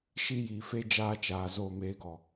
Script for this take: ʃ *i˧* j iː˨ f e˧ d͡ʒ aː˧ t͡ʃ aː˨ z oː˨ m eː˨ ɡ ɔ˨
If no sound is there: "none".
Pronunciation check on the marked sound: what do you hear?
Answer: i˧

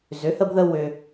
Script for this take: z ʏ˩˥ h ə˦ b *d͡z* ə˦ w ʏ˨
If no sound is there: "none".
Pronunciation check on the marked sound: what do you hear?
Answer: ð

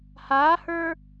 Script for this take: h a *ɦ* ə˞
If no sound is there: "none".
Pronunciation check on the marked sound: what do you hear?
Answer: h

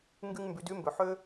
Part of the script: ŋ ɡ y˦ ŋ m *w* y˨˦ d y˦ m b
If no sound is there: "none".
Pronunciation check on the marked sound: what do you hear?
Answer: b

